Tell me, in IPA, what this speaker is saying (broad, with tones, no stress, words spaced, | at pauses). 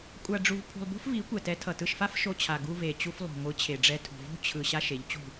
kʷʼa˧ɖ͡ʐu˧v pʰṳ˧lˠbo̤˦fvi˨˦ kʷɛ˨tɛ˨˦tʰʌ˨tɯ˧ʃ fa˦fʃo˧t͡ɕʰa˨ ɡu˧ve˨t͡ɕu˧flˠo̤˨ ŋʷɯ˨˦t͡ɕʰe˨ɖ͡ʐɛ˧ tʰṳ˨vo̤˦ t͡ɕʰɯ˨ ɕa˦ʃe˨˦ʎt͡ɕṳ˦˨